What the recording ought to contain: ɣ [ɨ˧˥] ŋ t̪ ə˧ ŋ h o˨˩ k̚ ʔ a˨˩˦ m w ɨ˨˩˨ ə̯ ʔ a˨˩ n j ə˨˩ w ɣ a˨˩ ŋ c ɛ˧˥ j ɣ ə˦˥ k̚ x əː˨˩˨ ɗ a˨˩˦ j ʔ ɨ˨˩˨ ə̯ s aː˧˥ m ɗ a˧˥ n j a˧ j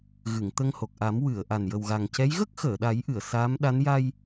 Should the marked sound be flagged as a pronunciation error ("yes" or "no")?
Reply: yes